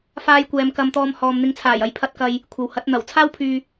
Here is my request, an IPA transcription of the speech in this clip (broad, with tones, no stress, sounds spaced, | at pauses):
f aː˥ j kʷ ɛː˧ m k ɐ˧ m t̪ ɔː˧ m h ɔː˨ m n̪ ɪ˨˧ ŋ t͡sʰ aː˨˩ j ɐ˨ j pʰ ɐ˧ t̚ k ɐ˨ j | kʷʰ ɐ˨ w h ɐ˨˥ t̚ n̪ ɐ˨˩ w t͡sʰ aː˥ w pʰ yː˨